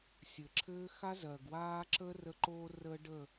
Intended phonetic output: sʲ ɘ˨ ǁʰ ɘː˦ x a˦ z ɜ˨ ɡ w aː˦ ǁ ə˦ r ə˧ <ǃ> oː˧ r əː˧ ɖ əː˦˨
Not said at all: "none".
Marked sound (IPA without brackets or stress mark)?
ǃ